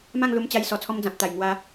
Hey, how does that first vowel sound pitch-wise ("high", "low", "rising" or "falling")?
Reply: falling